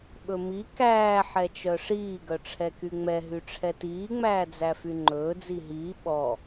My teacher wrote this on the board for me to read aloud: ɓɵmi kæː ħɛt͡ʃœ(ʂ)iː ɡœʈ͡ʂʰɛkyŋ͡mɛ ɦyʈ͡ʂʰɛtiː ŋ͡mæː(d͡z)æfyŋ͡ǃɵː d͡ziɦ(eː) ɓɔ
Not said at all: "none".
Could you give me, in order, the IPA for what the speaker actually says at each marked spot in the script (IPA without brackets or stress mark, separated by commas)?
ʂ, d͡z, iː